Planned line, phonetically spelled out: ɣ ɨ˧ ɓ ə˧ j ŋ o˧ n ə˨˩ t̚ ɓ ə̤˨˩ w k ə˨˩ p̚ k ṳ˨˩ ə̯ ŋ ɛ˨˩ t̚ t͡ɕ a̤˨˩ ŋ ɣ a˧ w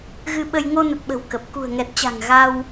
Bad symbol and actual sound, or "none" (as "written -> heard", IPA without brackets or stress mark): none